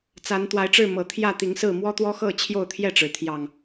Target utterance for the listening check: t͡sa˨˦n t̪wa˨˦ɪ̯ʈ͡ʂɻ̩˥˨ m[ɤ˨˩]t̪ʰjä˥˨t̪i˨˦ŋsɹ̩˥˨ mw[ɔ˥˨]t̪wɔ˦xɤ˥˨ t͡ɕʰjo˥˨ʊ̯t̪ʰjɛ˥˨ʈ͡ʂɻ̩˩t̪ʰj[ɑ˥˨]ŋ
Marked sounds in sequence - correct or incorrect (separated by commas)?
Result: correct, incorrect, incorrect